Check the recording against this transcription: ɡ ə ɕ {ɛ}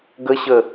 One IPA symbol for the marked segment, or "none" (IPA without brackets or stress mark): ə